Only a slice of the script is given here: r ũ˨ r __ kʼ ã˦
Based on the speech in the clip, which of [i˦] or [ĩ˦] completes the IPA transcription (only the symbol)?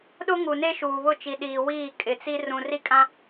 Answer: i˦